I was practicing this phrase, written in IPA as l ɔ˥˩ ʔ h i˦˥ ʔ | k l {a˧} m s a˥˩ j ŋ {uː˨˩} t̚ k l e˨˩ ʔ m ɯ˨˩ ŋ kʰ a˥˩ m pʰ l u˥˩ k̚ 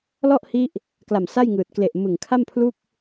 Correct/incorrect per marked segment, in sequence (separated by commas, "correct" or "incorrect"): incorrect, incorrect